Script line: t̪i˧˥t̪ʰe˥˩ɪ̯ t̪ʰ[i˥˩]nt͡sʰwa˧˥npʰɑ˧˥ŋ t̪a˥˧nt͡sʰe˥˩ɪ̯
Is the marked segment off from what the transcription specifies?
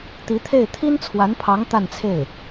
yes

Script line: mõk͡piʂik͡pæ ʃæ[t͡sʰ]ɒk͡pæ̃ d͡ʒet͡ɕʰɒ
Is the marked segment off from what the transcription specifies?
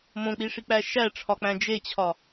yes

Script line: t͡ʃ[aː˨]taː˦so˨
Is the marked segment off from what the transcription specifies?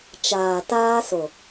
no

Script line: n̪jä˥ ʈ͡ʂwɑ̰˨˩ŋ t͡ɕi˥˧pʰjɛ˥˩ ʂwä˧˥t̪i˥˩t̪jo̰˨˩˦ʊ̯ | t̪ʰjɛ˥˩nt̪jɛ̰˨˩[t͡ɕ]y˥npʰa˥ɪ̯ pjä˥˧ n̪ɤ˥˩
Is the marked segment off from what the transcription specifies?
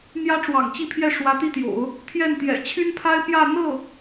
yes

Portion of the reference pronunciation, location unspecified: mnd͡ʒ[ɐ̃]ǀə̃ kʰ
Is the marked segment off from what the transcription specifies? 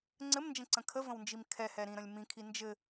yes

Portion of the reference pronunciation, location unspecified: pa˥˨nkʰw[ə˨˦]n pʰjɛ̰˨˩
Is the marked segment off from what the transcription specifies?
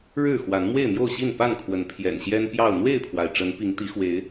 no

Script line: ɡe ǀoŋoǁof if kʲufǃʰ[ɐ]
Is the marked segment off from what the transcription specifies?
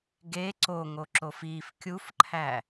yes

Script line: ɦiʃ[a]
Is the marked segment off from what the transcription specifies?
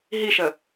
yes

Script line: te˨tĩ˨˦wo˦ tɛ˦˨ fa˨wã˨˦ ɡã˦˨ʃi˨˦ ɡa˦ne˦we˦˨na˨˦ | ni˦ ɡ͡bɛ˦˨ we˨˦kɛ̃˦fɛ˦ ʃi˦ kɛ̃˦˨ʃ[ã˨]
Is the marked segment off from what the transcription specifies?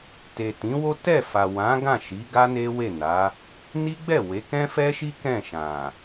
no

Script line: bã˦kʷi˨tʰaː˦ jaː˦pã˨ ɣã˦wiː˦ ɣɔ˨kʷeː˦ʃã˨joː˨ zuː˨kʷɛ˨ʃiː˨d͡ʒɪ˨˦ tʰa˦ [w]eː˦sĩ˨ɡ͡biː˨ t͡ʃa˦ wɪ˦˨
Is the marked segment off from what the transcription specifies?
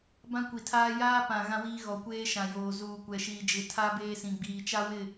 yes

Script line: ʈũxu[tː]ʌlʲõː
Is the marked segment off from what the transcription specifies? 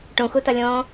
yes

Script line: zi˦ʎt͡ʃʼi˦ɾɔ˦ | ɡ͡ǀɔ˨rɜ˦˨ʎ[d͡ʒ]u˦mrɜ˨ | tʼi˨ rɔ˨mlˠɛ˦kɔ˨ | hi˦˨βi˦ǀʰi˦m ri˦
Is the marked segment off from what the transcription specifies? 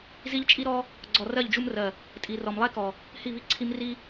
no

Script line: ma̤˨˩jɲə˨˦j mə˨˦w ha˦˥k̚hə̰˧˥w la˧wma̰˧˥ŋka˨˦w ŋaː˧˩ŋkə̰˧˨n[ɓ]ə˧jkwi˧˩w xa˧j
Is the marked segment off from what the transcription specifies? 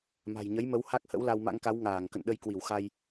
yes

